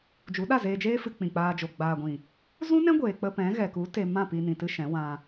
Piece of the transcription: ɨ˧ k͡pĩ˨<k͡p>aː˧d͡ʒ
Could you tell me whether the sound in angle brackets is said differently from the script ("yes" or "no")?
no